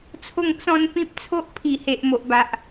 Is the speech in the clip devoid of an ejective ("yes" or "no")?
yes